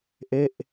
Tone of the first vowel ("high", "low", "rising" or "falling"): falling